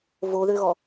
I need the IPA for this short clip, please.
v o ð ø ɣ ɔ

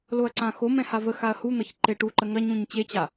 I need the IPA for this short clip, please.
l o ɐ̯ ǀ ã x o m ɛ̃ h a v ə x a ɐ̯ h u n̪ ʌ ç ǃ e ʈ u ǃ ə ŋ ɐ ɲ ũ ɲ t͡ɕ e t͡ɕ a

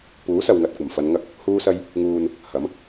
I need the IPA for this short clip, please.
p uː˨˥ s ɐ˨ w ŋ ɐ˨ t̚ kʷ ɐ˨˩ m f ɐ˨˧ n ŋ ɐ˧ k̚ | h uː˧ s ɐ˧ j | ŋ uː˨ n | h ɐ˨˥ m

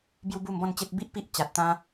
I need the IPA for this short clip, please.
b j u˦ b u˥˧ m b ɔ̃˥˧ n t͡ɕ e˦ t̚ b i˦ ʔ p i˦ ʔ t͡ɕ a˨ t̚ t̪ ã˧

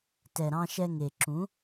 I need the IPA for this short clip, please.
t ɛ˨ ɾ ɑ̃˧ ʃ ɛ˧ ŋ e˨ ǁ ũ˨˦

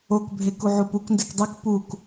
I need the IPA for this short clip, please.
o k bʱ e k u ʕ u p u k n d e k dˤ i k p u k

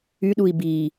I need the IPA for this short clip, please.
y ɗ u i̯ b i

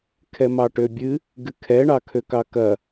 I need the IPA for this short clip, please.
kʰ ɛ m ɑ ʈ ø bʲ ɨ | ɡ ɨ kʰ ɛ ɳ ɑ kʰ ø k ɑ k ɐ

